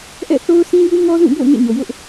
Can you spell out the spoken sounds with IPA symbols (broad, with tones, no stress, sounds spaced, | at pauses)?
ʔ ɛ̰˦˨ θ o˦ ʊ̯ s ĩ˦ j u˦ ŋ ɔ˦ z ũ˦˨ b o̰˦˨ ʊ̯ ŋ ḛ˦˨ ɲ o˨ j ʊ˦ ʔ